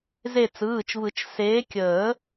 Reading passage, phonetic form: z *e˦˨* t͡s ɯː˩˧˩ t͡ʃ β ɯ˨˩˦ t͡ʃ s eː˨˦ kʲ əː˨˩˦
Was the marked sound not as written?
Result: no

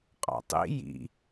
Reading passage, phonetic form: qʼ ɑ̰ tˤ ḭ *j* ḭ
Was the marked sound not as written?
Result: no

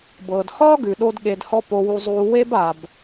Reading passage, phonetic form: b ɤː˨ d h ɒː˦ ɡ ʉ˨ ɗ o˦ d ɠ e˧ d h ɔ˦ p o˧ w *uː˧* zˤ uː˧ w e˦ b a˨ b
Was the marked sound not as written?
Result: yes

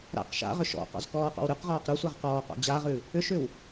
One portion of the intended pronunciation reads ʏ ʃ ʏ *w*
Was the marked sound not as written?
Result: no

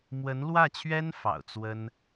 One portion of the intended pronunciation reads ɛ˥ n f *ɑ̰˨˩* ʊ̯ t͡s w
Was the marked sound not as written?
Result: no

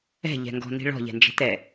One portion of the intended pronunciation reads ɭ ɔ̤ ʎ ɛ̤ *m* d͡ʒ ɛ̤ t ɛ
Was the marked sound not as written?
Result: yes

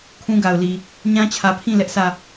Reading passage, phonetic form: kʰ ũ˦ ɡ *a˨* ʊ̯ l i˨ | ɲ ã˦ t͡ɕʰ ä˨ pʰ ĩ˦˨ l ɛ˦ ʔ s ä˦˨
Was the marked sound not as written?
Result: no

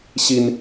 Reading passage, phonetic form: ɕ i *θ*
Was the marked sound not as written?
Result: yes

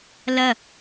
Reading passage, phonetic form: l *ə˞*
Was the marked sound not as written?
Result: yes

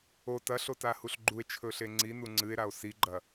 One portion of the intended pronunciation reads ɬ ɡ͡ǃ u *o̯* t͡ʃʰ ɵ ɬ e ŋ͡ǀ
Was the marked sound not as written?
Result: yes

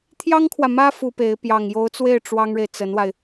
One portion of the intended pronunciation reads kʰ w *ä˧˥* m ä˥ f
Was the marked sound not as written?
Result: yes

